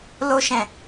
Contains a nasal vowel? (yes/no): yes